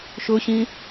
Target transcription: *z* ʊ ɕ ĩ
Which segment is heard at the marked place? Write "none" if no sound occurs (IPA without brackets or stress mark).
ʃ